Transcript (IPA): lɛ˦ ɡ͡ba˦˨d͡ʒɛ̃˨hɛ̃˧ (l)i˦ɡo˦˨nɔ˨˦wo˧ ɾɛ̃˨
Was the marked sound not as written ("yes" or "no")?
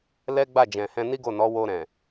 yes